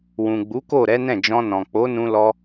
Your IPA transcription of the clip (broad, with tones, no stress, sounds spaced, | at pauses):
w ũ˨ ɡ͡b u˨˦ k o˦˨ ɾ ɛ˨˦ n ɛ̃˦˨ d͡ʒ ɔ̃˧ n ɔ̃˨ k͡p o˨˦ n ũ˧ l ɔ˧